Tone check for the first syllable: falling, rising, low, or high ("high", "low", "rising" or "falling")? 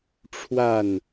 falling